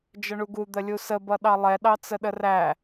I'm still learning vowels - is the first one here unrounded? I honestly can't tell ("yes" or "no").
yes